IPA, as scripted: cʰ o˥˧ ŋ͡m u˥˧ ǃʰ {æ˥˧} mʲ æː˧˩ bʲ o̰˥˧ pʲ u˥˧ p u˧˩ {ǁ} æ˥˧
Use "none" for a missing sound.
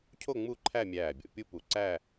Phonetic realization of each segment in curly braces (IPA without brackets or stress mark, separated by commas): æ˥˧, ǀ